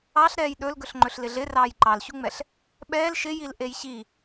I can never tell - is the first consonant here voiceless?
yes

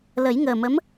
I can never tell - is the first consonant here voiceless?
no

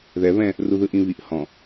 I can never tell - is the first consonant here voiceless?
no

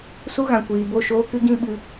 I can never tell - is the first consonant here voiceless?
yes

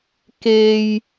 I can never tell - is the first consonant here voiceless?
yes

